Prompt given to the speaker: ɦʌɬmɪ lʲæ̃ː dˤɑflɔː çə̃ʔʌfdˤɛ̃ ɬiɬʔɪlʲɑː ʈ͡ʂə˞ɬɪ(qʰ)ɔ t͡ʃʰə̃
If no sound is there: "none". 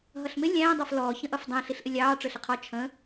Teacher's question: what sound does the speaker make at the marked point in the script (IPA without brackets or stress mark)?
qʰ